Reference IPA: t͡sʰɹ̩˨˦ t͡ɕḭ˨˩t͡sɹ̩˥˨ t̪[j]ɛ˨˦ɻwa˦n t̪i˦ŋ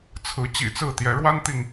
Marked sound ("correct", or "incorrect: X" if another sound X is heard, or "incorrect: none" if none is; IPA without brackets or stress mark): correct